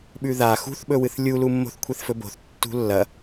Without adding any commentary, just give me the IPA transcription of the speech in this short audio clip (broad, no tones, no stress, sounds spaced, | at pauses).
ɓ ʉ ð a x ṳ θ ɓ ɵ w ɨ θ lʲ u l u mː o̤ θ kʷʰ e θ f ɵ b o̤ θ tː ṳ lː ɐ